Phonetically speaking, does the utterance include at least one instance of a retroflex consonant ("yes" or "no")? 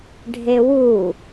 yes